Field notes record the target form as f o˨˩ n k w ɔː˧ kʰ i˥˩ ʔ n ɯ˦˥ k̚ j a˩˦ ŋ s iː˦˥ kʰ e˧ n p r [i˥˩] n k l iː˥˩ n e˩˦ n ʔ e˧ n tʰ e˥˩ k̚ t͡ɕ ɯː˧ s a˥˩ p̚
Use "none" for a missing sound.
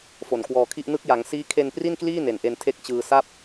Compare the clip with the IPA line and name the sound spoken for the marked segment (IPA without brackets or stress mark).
i˥˩